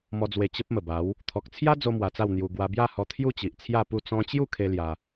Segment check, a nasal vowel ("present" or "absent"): present